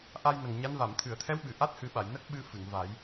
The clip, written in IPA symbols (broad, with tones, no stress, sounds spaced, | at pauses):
ʔ a˧ j n ə˨˩ ŋ ɲ a˧˥ n v a˨˩˨ m t̪ʰ ɨ˨˩˨ ə̯ t̪ʰ ɛ˧˥ w ɓ ɨ˨˩˨ ʔ a˦˥ t̚ h ɨ˨˩˦ ɓ a˨˩˨ j n ə˦˥ k̚ ɓ ɨ˧ f ɨ˨˩˨ ŋ v a˨˩˦ j